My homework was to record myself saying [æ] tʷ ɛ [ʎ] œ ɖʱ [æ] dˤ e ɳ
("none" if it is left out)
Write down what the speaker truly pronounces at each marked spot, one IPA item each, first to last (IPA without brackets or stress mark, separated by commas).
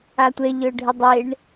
a, ʎ, ə